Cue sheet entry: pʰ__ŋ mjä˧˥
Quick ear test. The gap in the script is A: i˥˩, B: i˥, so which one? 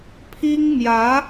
B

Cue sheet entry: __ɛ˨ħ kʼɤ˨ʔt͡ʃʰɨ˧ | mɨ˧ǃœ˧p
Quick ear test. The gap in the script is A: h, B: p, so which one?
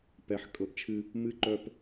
B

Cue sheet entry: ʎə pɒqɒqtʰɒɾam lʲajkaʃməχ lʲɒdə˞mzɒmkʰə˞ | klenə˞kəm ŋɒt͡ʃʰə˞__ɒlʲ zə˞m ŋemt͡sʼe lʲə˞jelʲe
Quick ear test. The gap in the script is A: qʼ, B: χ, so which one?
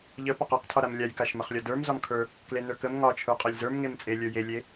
A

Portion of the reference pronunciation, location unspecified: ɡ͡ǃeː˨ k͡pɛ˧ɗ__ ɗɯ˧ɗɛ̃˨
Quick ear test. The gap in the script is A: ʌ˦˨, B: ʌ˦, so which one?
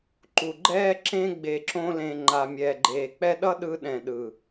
B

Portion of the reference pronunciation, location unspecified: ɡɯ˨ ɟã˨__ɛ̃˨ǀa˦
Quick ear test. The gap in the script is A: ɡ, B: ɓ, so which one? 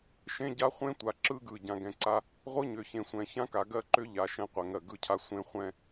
A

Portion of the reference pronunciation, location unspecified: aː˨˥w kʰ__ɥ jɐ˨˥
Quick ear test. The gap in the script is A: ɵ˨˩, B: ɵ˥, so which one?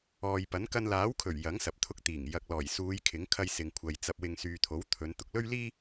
A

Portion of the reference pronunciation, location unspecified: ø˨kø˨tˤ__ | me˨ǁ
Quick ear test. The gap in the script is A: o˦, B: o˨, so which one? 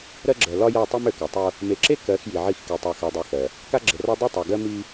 A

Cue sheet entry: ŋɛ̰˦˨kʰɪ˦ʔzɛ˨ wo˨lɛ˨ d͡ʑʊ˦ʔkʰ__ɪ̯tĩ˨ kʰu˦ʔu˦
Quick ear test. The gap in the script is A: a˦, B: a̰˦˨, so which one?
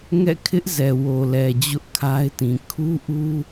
A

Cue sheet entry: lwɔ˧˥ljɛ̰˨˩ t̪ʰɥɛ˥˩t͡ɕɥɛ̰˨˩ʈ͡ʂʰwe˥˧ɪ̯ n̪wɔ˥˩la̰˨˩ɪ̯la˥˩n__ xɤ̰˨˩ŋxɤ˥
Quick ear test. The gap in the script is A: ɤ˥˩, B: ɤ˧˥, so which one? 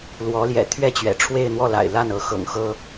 B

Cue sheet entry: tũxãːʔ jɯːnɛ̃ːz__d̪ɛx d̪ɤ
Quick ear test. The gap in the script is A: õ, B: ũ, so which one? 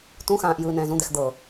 B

